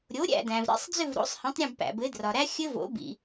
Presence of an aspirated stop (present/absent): absent